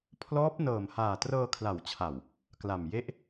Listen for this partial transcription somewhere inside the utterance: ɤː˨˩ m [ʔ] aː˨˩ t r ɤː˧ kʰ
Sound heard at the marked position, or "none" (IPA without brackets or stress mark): h